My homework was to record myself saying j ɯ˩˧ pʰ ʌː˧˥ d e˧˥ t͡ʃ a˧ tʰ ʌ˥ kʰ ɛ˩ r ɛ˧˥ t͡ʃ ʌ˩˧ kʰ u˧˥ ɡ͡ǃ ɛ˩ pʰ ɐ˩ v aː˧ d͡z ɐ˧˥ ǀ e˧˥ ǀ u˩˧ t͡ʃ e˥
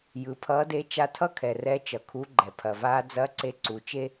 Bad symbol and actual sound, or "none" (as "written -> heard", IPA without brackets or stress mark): none